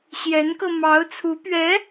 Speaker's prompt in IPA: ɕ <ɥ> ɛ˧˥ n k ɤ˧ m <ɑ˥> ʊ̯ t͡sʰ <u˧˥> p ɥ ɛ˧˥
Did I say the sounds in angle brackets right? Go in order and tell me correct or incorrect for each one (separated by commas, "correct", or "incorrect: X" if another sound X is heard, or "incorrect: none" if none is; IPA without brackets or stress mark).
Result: incorrect: j, incorrect: ɑ˧˥, correct